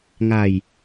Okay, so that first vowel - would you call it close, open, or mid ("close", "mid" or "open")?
open